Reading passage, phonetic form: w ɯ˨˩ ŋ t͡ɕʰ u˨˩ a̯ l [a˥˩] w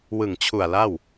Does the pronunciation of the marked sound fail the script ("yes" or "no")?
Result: no